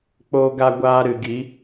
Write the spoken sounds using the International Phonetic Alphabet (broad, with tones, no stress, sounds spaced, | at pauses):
k͡p oː˨ ɡ a˨ ɡʷ aː˧ ɾ ɨ˨ ɡ i˨˦